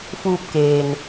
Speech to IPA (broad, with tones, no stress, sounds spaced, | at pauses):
f uː˧ p̚ k eː˩ n